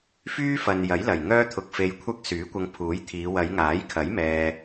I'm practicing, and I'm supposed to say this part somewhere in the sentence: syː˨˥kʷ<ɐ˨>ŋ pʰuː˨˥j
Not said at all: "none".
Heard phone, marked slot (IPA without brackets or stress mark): ɐ˧